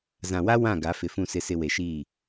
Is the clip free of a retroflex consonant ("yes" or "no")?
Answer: yes